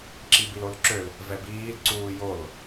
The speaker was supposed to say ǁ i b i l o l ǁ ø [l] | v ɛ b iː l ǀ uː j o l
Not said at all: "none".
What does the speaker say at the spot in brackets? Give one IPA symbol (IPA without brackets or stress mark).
l